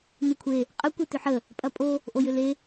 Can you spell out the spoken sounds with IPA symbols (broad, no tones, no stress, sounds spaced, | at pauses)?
n u kʷʰ e | qʼ ə kʷ e t ʏ ħ ə | pʼ ɐ pʼ o | ʔ o j ʏ l e